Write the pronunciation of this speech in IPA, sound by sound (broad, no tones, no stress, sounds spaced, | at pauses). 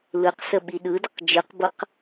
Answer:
l ɯ q s ə ɓ i ɗ ɯ d ə q d͡ʒ ɯ q b ɤ q